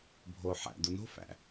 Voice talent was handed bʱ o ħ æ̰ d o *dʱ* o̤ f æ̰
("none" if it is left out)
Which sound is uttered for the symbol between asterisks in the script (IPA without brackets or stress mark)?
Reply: n